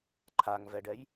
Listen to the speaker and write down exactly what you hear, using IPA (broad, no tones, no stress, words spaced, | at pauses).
ǃʰaŋvɛɖɛj